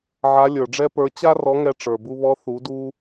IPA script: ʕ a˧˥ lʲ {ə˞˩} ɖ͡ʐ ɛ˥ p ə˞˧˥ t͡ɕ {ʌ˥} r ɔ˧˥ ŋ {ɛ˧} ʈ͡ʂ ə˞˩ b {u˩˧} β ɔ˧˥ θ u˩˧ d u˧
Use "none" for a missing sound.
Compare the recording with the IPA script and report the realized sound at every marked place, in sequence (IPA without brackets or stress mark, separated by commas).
ə˞˩, a˥, ɛ˧, u˧